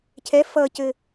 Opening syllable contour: rising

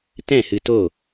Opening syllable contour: falling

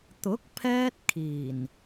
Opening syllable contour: rising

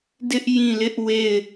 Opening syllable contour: high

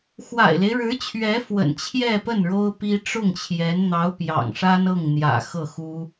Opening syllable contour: low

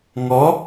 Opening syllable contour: rising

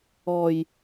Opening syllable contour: low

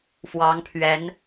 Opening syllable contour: rising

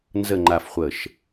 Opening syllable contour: falling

